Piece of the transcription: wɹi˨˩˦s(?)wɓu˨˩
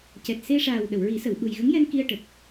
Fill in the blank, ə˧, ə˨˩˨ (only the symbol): ə˨˩˨